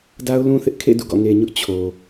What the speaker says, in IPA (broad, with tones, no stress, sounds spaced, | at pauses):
d a˦ ʊ̯ l ũ˦ θ ɪ˦ ʔ kʰ ḛ˦˨ d ṵ˦˨ ɡ ɔ̰˦˨ ŋ e˨ ɲ ʊ˦ ʔ t͡ɕʰ o˨